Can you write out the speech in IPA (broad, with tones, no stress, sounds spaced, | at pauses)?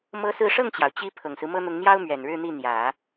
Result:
m ɤ˥ s ɹ̩˥˧ ʂ ɤ˥˩ ŋ t͡ɕ j ɑ˩ ʊ̯ t͡ɕ i˥ pʰ ɤ˨˩ ŋ s ɹ̩˦ m ɤ˥ n̪ ʊ˧˥ ŋ n̪ j ɑ˥ ʊ̯ m ɥ ɛ˨˩ n ɻ ɻ̩˥˧ n̪ i˥˩ n̪ j ä˨˩˦